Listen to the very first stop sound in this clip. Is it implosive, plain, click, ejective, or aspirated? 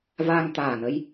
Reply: plain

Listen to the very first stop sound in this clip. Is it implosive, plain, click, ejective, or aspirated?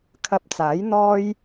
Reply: aspirated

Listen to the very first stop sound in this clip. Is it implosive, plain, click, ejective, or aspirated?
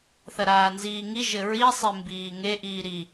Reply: plain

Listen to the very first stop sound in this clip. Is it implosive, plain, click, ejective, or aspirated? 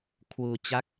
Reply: aspirated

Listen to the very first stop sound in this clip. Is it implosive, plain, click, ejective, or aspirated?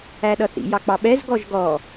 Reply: implosive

